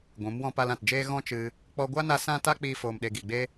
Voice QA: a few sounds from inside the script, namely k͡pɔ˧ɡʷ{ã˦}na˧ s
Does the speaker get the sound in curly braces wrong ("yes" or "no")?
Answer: yes